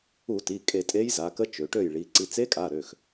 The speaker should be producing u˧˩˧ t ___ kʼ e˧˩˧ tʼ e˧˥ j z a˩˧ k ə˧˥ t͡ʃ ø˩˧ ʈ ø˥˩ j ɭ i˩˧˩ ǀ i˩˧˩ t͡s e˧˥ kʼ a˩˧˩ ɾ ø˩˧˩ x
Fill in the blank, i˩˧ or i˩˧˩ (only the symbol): i˩˧˩